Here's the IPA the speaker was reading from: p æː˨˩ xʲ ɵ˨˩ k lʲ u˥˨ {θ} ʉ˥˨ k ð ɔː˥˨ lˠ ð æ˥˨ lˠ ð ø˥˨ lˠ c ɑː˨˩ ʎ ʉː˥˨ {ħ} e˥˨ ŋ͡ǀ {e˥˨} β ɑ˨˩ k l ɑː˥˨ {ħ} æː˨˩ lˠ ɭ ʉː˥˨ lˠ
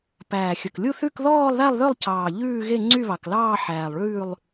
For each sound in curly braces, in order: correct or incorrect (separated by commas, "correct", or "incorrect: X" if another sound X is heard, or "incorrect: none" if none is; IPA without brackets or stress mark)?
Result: correct, incorrect: ɣ, incorrect: y˥˨, correct